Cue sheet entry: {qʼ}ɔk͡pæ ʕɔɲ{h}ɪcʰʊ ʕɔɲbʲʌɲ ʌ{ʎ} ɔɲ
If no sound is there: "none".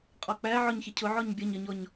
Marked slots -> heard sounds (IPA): qʼ, ç, ɲ

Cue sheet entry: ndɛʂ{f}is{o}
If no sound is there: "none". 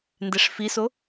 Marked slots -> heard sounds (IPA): f, o

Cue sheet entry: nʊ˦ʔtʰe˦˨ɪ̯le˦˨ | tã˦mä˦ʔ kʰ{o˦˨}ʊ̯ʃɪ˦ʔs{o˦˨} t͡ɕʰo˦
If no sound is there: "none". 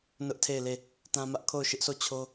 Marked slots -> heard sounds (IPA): o˦˨, o˦˨

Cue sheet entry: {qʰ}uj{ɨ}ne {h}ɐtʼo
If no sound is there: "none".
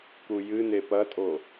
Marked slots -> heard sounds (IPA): k, ɨ, p

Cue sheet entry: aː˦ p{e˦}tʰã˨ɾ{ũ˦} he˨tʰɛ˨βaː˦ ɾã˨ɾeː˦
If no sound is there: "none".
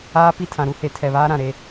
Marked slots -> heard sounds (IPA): i˦, u˦

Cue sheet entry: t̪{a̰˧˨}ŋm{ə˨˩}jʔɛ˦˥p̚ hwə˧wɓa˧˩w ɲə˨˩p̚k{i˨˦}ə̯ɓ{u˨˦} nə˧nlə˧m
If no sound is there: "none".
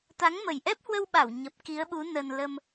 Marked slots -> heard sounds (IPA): a˨˦, ə˨˩, i˨˦, u˨˦

